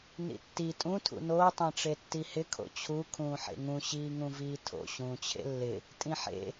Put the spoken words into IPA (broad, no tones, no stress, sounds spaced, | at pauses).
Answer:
n ḭ tː i tʼ ũ tʰ ṵ n oː tˤ ẽ ʈ͡ʂ e tː i h ɪ kʰ o̰ t͡ɕʰ u kʰ ũː ħ ḛ ŋ ũ ɕ iː ŋ ũ v iː tʰ o̰ ɕ ũː t͡ɕʰ ḛ lː ɪ | tʼ ĩ ħ ḛ